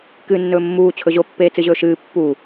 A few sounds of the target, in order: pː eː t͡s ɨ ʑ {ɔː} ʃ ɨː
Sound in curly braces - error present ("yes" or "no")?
yes